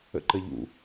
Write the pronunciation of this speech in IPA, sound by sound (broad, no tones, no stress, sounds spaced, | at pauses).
ə̰ ǃ ə ʎ ṵ